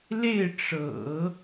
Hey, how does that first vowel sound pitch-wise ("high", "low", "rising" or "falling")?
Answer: falling